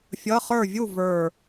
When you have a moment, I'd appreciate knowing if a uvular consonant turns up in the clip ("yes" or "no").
yes